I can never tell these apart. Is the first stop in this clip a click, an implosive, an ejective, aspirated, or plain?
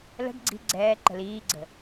plain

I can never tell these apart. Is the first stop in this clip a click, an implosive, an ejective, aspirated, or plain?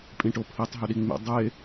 ejective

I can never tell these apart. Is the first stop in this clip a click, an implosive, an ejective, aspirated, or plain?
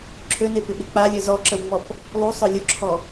click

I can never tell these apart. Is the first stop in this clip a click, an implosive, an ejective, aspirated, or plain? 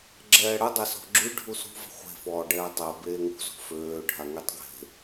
click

